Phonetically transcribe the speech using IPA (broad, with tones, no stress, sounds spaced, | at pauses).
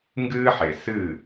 ŋ ɡ ɨː˥ ħ e˩ s ɨː˥˩